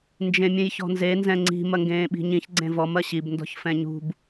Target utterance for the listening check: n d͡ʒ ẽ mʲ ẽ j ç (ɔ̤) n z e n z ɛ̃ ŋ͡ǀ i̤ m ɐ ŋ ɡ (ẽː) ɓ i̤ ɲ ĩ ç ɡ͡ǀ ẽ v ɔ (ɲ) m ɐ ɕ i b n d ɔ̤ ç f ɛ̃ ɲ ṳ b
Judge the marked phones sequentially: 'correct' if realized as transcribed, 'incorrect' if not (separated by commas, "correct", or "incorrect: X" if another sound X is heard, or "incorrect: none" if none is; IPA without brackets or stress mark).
correct, correct, incorrect: none